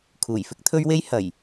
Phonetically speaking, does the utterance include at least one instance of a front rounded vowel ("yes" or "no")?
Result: no